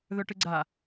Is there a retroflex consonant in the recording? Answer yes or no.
yes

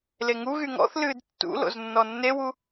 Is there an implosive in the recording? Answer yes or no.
no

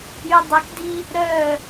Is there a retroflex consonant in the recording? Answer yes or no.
no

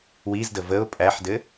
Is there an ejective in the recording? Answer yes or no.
yes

